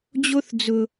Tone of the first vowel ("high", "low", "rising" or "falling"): high